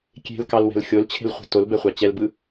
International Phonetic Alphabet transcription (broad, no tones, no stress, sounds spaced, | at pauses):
kʲ e̤ l k ɑ l w ɛ̤ l xʲ o l t͡ɕʰ e̤ l χʷ e̤ t o l b ɛ χʷ ɑ t͡ɕ ɛ l b ɯ